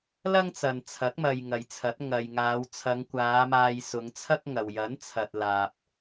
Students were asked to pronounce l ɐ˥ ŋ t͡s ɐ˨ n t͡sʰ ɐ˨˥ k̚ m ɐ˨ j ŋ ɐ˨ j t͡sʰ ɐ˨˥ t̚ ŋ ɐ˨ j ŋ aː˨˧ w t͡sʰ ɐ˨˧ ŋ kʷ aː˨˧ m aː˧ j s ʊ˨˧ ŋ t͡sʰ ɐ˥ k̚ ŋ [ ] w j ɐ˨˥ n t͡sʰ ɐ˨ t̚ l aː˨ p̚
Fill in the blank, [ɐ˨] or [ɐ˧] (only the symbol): ɐ˨